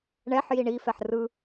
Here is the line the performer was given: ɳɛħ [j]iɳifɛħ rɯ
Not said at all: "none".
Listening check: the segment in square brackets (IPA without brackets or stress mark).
j